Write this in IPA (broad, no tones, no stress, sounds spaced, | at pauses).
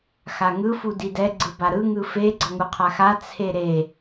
x a ŋ ɯ f u d i d ɛ ɡ͡ǀ ɯ b a ɾ ɯ ŋ ɯ f e ɡ͡ǀ ʌ ŋ u qʰ a x a t͡sʰ e ɾ e